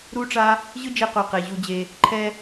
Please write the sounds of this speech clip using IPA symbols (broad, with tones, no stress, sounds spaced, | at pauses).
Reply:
ɾ u˦ ʈ͡ʂ a˦ | ʑ ɯ˦ d͡ʒ e˧ q o˨ q e˨ ʑ u˧ d͡ʑ e˧ | ǃʰ ɛ˧